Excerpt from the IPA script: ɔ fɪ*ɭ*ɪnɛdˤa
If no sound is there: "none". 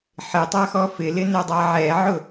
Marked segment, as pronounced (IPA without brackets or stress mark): l